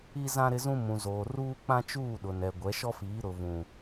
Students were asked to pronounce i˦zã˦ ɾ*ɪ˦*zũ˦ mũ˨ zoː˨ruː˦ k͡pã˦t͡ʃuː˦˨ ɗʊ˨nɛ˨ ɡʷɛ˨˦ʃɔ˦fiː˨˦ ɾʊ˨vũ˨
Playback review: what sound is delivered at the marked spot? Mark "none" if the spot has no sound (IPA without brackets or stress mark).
ɪ˦